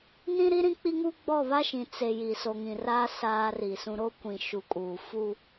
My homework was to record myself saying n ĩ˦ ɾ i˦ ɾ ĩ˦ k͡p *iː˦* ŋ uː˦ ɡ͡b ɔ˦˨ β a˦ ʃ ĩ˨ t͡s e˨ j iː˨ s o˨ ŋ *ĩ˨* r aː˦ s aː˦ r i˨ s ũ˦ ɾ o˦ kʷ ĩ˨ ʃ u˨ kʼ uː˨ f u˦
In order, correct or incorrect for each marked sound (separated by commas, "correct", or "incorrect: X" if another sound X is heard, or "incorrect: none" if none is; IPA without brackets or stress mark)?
incorrect: i˦, correct